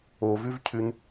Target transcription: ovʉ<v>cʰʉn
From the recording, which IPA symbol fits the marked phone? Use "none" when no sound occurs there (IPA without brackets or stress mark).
v